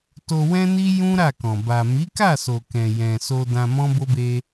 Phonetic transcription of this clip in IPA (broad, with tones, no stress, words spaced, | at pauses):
to˧wɛ̃˦ni˦ jũ˦ɾa˦˨kɔ̃˨ ba˨ mi˨˦ka˦˨so˨ kɛ̃˨jɛ̃˨so˧ dã˧mɔ̃˦bo˦be˦